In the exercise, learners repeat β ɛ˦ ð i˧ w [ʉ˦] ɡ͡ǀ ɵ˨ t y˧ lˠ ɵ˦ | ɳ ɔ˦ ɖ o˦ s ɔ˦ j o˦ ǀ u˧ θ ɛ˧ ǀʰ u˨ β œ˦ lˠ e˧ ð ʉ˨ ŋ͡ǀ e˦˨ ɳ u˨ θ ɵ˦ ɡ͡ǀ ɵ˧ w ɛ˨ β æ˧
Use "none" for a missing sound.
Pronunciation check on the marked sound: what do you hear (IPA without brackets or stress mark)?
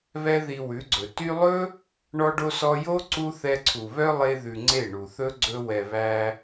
ʉ˨˦